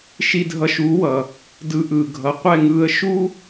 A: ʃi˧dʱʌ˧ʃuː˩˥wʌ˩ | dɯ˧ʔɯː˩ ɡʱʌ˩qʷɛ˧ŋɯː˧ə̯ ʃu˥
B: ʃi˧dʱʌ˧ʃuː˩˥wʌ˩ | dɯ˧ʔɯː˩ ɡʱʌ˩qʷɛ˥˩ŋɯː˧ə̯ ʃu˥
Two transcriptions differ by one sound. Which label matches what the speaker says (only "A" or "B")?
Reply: B